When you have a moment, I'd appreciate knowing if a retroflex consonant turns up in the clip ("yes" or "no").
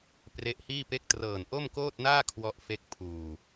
no